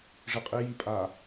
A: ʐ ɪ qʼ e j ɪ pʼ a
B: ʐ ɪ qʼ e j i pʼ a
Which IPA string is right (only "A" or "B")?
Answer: B